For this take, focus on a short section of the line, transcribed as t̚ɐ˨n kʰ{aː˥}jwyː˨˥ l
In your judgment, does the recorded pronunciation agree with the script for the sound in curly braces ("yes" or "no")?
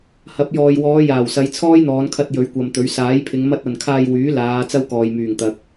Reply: no